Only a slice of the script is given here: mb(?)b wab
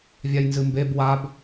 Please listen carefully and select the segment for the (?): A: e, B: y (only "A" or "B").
A